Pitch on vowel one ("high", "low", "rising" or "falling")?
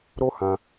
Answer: high